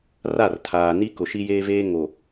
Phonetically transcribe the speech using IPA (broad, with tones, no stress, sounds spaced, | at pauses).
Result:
r a˦˨ r tʰ aː˨ n i˦ k ʊ˨ ʃ i˦ j eː˦ v eː˦ ŋ o˨